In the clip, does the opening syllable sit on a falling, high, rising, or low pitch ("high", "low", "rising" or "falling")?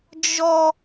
high